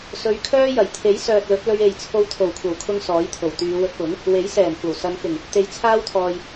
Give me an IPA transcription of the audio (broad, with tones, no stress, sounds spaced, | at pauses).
s ɵ˧ ɥ kʰ œː˥ j ɐ˨˩ j t̪ʰ e˨˥ j s œː˨ t̚ l ɵ˨˥ t̚ l ɵ˧ ɥ e˨ j t͡sʰ o˧ w t̪ʰ o˨˩ w kʷʰ ɐ˨˩ w kʰ ʊ˧ ŋ s ɔː˨˥ j t̪ʰ o˨˩ w t̪ yː˨˧ w ɵ˧ t̚ p ʊ˨˥ ŋ | w e˨˥ j s ɛː˨˩ m kʷ ɐ˨˩ w s ɐ˨˧ n k ɪ˨˩ ŋ | t̪ e˨˧ j t͡sʰ aː˥ w t̪ʰ ɔː˨ j